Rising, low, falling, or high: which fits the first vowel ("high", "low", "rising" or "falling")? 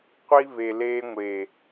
high